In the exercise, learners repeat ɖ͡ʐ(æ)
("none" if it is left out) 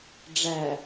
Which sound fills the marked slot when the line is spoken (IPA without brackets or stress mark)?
æ